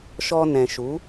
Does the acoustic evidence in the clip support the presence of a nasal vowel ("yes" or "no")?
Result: yes